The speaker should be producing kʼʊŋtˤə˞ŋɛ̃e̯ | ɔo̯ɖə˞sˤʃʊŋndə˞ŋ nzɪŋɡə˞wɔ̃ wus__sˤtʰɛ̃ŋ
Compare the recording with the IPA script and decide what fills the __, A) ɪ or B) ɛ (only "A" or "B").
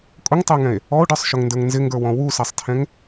B